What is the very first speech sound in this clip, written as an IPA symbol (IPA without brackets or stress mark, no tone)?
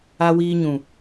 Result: a